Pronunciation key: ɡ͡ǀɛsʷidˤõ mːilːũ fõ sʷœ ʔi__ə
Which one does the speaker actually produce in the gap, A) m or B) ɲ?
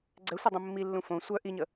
B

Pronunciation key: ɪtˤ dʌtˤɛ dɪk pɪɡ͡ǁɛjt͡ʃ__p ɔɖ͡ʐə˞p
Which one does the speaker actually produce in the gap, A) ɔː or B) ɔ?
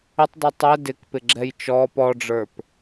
A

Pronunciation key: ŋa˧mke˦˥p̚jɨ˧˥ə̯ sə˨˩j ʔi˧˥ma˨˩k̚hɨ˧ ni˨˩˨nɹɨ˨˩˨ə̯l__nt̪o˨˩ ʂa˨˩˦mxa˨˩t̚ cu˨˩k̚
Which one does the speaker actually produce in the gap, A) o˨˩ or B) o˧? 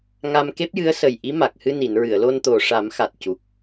B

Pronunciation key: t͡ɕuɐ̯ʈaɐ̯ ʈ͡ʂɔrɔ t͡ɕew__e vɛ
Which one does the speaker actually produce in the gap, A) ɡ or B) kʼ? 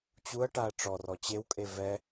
B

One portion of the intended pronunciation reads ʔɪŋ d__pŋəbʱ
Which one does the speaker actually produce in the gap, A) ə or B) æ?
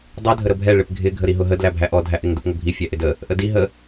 A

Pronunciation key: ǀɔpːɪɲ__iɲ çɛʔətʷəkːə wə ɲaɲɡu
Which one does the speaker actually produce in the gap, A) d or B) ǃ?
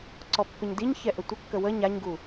A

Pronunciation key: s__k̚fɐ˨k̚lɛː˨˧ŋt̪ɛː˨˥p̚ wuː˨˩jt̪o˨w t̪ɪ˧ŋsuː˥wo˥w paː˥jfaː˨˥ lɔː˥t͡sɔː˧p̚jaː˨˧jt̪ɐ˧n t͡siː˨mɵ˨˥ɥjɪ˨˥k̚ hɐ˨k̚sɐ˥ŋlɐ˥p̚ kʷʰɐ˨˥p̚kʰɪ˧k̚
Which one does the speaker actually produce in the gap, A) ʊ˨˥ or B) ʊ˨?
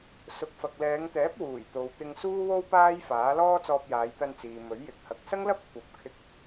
B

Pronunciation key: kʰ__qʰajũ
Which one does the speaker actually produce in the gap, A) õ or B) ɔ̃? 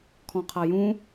B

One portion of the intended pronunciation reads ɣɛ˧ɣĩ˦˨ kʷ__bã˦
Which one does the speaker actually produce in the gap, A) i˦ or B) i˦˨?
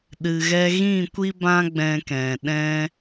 A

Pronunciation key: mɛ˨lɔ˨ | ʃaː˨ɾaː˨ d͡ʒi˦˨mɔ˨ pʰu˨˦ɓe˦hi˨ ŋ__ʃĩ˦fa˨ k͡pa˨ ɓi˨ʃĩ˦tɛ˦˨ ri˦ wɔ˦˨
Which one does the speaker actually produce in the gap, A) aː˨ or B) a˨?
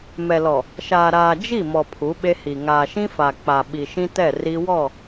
A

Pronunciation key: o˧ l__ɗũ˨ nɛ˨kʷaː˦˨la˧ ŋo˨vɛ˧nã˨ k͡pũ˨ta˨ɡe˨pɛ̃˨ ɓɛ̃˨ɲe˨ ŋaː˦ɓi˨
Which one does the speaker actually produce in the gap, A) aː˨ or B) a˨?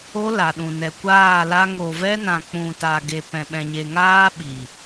B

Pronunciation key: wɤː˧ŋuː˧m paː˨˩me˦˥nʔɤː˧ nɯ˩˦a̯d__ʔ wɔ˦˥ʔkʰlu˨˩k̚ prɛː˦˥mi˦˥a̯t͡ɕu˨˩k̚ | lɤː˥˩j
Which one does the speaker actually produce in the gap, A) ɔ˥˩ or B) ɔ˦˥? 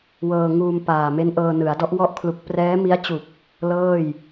B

